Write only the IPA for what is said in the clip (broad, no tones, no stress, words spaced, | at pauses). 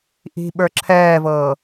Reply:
ʔi̤ ɓə˞ǁʰɛːvɤː